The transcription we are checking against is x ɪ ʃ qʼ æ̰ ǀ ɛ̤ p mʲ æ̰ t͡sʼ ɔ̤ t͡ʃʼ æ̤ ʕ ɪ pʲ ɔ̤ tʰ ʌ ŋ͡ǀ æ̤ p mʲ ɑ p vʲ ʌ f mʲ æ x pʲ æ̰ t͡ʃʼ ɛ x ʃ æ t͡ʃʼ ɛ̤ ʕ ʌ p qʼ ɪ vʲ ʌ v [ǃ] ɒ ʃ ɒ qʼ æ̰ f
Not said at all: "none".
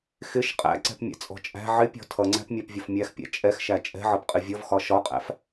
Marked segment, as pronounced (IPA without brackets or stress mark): x